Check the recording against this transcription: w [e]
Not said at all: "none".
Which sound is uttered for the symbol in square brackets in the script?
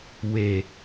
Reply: e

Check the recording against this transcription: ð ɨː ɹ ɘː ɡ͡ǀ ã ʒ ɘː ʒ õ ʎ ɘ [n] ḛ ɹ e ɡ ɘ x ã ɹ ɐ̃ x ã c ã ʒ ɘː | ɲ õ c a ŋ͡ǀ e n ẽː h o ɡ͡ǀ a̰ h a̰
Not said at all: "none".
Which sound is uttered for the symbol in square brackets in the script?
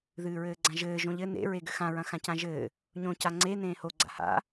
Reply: n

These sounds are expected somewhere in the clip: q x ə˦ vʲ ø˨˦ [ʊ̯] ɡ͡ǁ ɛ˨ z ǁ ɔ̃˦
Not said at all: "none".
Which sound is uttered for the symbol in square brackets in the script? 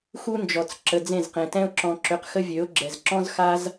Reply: ʊ̯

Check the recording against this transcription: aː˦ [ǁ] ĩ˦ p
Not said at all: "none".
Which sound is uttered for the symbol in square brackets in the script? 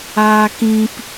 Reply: k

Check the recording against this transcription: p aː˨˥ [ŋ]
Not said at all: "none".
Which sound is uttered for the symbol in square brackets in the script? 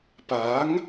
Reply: ŋ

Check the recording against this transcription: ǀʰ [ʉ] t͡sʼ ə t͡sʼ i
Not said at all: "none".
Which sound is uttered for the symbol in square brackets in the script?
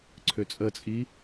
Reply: ø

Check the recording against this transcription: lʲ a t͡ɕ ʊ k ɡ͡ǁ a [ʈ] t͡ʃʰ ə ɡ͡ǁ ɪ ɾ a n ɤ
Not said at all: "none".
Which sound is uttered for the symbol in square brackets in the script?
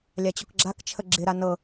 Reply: k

